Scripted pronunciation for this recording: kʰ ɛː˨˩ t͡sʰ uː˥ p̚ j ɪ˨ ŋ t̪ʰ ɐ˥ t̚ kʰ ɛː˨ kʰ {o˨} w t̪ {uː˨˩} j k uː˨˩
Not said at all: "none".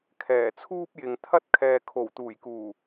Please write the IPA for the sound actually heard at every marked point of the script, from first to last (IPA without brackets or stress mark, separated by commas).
o˨˩, uː˨˩